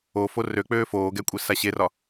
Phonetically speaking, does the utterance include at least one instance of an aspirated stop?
no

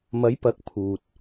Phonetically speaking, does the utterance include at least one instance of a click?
no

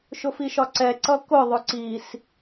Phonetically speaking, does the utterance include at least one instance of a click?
yes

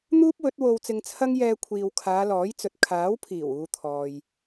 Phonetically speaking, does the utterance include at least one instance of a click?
no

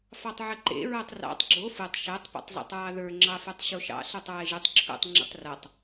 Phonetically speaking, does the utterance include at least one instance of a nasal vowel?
no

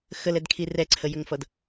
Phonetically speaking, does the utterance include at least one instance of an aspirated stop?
yes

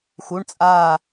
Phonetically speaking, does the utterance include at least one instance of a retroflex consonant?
yes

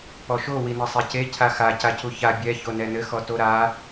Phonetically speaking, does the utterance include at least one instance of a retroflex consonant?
no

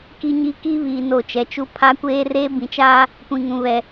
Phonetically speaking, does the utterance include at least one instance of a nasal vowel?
yes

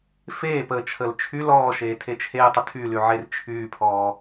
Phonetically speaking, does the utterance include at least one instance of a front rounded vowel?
yes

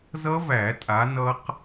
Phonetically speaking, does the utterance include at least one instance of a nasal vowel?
no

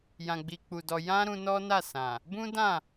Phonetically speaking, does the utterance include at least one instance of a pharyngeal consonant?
no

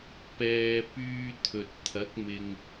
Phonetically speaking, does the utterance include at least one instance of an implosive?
no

